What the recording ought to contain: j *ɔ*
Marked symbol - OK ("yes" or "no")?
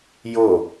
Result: no